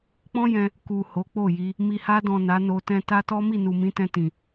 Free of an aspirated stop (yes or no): yes